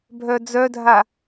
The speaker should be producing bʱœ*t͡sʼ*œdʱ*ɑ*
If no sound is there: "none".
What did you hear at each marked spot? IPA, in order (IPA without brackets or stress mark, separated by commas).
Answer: d͡z, a